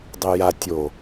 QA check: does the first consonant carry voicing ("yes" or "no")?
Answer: yes